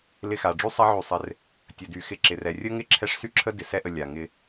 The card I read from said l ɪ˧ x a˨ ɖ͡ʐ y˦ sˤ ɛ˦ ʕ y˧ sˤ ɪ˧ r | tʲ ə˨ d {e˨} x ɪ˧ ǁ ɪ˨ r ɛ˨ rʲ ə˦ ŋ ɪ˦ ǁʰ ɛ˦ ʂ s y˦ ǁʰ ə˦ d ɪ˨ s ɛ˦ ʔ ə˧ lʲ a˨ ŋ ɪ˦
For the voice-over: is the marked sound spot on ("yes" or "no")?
no